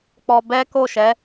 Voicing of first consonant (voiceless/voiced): voiceless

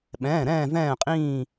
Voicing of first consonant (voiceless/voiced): voiced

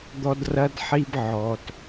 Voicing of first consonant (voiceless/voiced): voiced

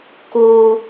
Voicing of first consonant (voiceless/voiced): voiceless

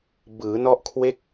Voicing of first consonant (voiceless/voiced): voiced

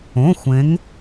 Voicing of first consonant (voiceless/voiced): voiceless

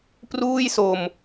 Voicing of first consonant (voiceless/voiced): voiceless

